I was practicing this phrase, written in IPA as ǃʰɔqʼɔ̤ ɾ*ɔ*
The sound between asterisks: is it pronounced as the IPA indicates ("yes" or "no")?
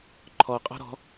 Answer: no